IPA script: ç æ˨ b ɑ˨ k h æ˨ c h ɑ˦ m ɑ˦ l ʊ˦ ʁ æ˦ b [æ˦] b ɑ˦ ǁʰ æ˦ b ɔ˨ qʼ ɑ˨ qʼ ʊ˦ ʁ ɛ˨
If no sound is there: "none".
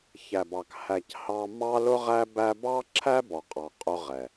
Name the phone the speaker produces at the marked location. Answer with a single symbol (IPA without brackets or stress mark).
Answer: æ˦